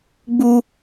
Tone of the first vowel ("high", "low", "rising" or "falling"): high